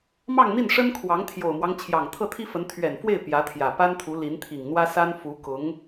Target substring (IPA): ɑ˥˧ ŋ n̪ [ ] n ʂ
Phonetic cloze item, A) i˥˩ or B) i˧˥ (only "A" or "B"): A